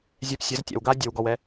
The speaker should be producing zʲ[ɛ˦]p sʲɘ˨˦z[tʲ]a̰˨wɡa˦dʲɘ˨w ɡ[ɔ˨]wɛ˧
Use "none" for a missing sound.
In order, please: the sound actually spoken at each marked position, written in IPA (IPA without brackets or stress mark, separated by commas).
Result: ɛ˧, tʲ, ɔ˨